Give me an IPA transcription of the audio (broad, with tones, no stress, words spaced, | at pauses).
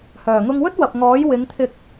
hœː˨˩ŋʊ˧ŋwɵ˥t̚ wɐ˨p̚ŋɔː˨˥j wɪ˨˧ŋt̪ʰɪ˧k̚